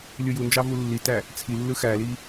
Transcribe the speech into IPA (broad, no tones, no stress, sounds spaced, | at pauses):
lʲ ɯ j u n d͡ʒ ɑ v u lː i t æ | t͡sʰ i lː ɯ x æ l i